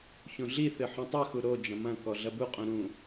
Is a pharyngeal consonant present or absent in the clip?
present